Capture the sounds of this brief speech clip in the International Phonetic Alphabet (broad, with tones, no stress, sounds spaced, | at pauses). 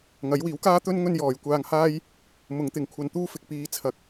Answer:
ŋ ɐ˨˥ j w iː˨˥ w k aː˥ t̪ ɵ˥ n ŋ ɵ˥ n j ɔː˨ j kʷ aː˧ ŋ h aː˥ j | m ʊ˨˧ ŋ t̪ ɪ˨ ŋ kʷʰ ɐ˧ n t̪ uː˥ f ɪ˨ k̚ p iː˨ t͡sʰ ɐ˨ k̚